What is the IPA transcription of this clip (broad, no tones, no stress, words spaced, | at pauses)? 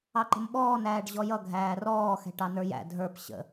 ɑǃə̤mɓɔːnæːɖ ʑɔjʌ ɡʱæːrɔːxɛ̤ ʈɑnə˞jæ̰ dʱə˞p ɕə̰